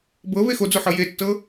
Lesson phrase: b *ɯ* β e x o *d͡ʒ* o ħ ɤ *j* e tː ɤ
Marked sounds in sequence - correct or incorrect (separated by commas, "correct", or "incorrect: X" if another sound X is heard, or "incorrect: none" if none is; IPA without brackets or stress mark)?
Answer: incorrect: ɤ, incorrect: d͡z, correct